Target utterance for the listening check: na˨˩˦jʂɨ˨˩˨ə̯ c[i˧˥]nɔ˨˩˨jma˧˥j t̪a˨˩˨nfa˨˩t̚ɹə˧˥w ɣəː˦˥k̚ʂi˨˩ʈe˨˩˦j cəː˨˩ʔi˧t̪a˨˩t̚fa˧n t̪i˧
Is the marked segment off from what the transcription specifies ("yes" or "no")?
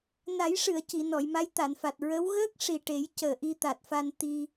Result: yes